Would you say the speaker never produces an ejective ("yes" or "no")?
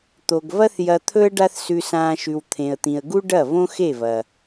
yes